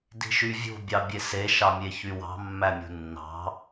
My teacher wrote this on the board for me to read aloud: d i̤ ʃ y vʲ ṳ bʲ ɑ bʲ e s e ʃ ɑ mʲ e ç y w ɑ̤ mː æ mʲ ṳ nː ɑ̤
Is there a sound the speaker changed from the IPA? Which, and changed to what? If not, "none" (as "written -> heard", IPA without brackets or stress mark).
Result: none